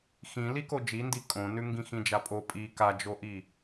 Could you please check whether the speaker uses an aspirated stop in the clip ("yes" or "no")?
no